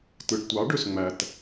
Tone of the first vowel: low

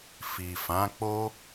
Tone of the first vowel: low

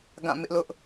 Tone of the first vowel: falling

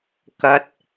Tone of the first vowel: low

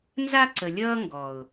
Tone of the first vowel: high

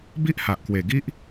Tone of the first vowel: high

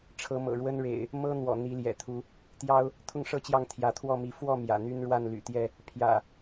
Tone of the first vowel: rising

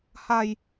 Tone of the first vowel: low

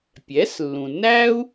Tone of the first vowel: rising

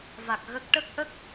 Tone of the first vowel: low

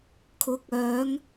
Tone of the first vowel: rising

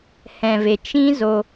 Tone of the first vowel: low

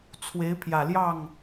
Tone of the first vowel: rising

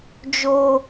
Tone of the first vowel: high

